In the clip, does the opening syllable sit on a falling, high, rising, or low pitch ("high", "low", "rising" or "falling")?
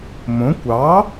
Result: rising